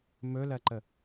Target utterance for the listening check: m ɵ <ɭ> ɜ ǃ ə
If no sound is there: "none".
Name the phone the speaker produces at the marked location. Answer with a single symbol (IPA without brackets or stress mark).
l